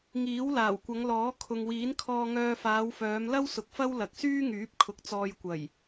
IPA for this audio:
ŋ iː˨˥ w l aː˨˩ w kʷ ɐ˨˧ ŋ l ɔː˨˥ kʰ ʊ˨ ŋ w iː˨˥ n kʰ ɔː˧ ŋ œː˧ f aː˨˧ w f œː˨˧ m l ɐ˥ w s ʊ˨˥ k̚ f ɐ˥ w l ɐ˨ k̚ s yː˥ ŋ yː˨˥ p̚ kʰ ʊ˨˥ k̚ t͡s ɔː˧ j kʷ ɐ˨˩ j

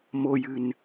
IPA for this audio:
m o j ɨ n

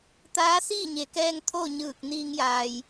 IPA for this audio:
t̪ aː˧˥ s iː˥˨ ɲ e˩˧ k ɛː˧ ŋ t̪ʰ o˥˨ ɲ ɯː˧˩ k̚ n iː˧ ŋ j aː˩ j

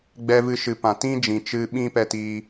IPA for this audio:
ɡ͡b ɛ˧ v ɨ˧ ʃ ɨ˨ p ã˨ t ĩ˦ d͡ʒ ĩ˨ t͡ʃ ɨ˧ ɓ ĩ˦ p ɛ˧ t iː˧

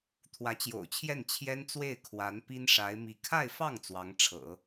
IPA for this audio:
t̪ʰ w ä˧˥ t͡ɕ j o̰˨˩ ʊ̯ t͡ɕʰ j ɛ˥˩ n t͡ɕʰ j ɛ˥ n t͡s w e˥˩ ɪ̯ kʰ w a˧˥ n p i˥ n ʂ a˧˥ ɪ̯ m i˧˥ kʰ a˥˧ ɪ̯ f ɑ˥˩ ŋ t͡s w ɑ˧˥ ŋ ʈ͡ʂʰ ɤ̰˨˩˦

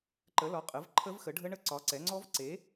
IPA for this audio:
ǃ ə˨˥ l ɒ˨˥ qʼ ə˨˥ v ǃʰ ə˦˥ v x ə˨˥ ɖʱ ə˦˥ ɳ ə˦˥ ǀ ɒ˨˥ ǀ ɛ˨˥ ŋ͡ǀ ɔ˦˥ v ǀ e˨˥

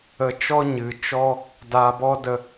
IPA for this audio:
ə˧ t͡ʃ ɔ˦ ɲ ɨ˨ t͡ʃ ɔ˦ | d aː˧ b ɔ˦ d ə˧

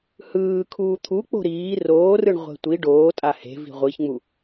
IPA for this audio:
h ɯː kʰ uː t̪ʰ u k͡p o̤ ɾ iː r oː r ɯ ɳ ʁʷ e̤ tʷ i ɖ oː tʼ a h e̤ v i̤ ʁʷ i ç ŋ͡m u

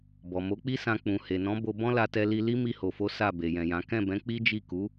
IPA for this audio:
b ɔ˨ m o˨˦ k͡p i˦ s ã˧ k͡p ũ˨ h e˨ n ɔ̃˨˦ b o˧ b ɔ̃˦ l a˧ t ɛ˧ l i˧ l i˦ m i˧ h o˨ f o˨˦ s a˦˨ b e˨ j ɛ̃˨ j ã˨˦ k ɛ̃˦˨ b ɛ̃˨˦ k͡p i˦ d͡ʒ i˦˨ k u˨˦

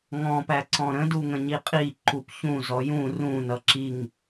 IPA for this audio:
ŋ ɔ̃ p æ ǀ ɔ̃ ɾ ə̃ d u ŋ ə̃ ɲ i qʼ i ǃ u p ç ũ z ɔ j ũ r ũ n ʌ ǁ i ŋ

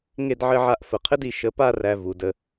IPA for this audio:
ŋ e˥˧ d ʕ ɘ˥˧ ʕ a˥˧ ʔ f ə˧˩ qʰ ɘ˥ d i˩˧ ʃ ə˧ p a˥˧ r æ˧ v u˩˧ d ə˧

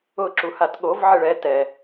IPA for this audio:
ʊ ǁ u h a t ɠ o v ʕ ɪ ɭ ɛ t ɛ

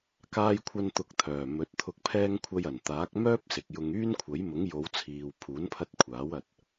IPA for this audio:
k aː˧ j kʷʰ ɐ˧ n t̪ ʊ˧ k̚ t̪ʰ œː˨˩ m ɵ˨˥ t̚ t̪ʰ ʊ˨ k̚ pʰ ɛː˧ ŋ kʷʰ ɐ˧ j ɐ˨˩ n t̪ aː˨˥ k̚ m œː˥ p̚ s ɪ˨ k̚ j ʊ˧ ŋ yː˥ n kʷʰ ɐ˨˥ j m ʊ˨˥ ŋ j o˨˧ w t͡sʰ iː˨ w pʰ uː˨˥ n pʰ ɐ˧ t̚ kʷʰ aː˨˥ w ɐ˧ t̚

